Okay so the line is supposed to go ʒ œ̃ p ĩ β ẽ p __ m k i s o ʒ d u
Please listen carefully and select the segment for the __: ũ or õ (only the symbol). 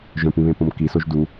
õ